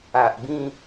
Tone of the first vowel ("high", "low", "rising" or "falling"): low